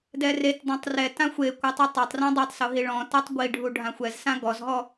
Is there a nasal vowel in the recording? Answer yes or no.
yes